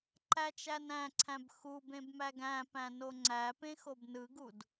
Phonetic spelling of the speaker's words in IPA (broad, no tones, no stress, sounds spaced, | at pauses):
ǃ æ t͡ʃ æ n æ̃ ǀʰ æ̃ b x u b ẽ b m æ ɡ æ̃ p æ̃ n o ŋ͡ǀ æ p ẽ x o b n ɯ ɡ u d